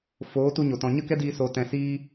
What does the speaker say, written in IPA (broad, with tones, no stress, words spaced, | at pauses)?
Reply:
foː˨˦tu˧ɲo˨ tɔ̃˨ɲə˦kɛ˦diː˧ so˧tɛ̃˧ siː˧